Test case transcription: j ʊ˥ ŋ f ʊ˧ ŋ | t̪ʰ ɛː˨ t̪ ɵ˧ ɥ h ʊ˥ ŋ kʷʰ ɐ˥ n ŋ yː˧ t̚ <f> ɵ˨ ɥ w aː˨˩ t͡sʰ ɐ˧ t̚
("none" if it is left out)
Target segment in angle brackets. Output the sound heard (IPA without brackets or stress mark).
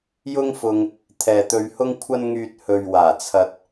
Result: h